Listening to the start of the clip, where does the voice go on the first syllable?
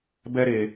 high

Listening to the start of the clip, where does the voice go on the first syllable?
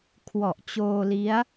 low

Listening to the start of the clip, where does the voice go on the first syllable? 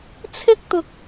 high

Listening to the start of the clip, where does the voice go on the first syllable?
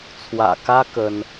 low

